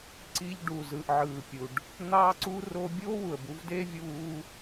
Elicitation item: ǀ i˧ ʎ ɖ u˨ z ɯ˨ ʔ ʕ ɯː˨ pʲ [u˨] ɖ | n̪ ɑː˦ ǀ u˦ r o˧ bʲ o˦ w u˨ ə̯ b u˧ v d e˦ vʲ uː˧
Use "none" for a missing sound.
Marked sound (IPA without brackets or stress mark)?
u˨